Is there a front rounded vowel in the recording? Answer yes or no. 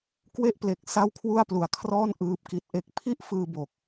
no